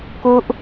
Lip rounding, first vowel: rounded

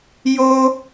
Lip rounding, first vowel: rounded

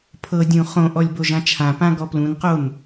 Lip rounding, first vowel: unrounded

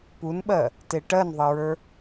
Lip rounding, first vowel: rounded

